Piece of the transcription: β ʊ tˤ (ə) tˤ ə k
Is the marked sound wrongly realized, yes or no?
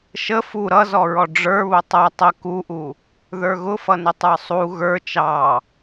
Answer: yes